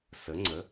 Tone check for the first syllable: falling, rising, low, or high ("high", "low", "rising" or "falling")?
rising